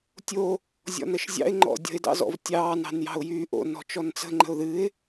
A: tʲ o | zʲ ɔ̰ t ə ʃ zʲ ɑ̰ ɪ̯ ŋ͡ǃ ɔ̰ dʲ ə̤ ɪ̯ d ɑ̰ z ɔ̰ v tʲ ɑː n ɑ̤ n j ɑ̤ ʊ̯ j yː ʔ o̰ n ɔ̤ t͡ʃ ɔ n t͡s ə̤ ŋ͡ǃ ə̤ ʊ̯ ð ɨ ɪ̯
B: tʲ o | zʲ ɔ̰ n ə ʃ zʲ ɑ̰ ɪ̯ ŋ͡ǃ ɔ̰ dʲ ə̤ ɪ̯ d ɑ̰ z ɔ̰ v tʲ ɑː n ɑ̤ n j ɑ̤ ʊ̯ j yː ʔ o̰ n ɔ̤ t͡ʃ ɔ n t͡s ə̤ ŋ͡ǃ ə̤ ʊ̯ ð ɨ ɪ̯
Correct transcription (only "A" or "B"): B